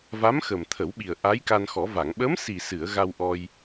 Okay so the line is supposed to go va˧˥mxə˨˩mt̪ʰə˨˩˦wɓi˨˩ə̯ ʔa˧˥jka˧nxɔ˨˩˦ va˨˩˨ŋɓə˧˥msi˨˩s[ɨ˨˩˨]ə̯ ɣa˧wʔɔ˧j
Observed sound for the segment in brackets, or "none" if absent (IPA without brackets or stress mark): ɨ˨˩˨